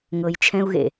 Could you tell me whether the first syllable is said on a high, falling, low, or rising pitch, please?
low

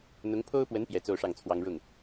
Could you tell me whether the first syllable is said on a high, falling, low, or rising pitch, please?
rising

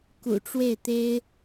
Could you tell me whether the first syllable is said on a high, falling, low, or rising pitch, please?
low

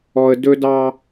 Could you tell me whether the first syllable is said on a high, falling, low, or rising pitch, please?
low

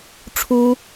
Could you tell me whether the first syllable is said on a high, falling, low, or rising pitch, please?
high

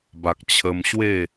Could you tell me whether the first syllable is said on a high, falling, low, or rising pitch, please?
low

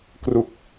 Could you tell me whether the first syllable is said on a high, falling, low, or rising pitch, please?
low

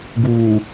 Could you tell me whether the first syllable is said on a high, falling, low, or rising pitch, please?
low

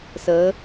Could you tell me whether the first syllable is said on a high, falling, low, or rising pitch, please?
rising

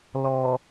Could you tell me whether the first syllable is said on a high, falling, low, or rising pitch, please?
low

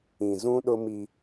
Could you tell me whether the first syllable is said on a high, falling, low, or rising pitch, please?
low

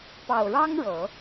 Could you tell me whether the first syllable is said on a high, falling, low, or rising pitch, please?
low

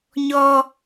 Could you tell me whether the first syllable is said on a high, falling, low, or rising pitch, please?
low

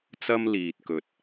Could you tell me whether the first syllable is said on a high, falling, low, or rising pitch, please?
high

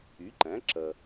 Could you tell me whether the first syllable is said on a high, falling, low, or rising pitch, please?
rising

